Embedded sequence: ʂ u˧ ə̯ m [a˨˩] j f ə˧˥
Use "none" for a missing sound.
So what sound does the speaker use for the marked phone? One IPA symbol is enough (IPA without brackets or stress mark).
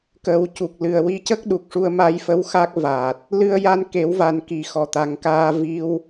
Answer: a˧